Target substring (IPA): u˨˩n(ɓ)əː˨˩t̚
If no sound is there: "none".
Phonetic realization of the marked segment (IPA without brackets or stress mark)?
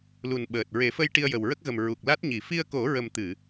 ɓ